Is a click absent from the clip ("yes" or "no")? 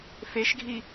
yes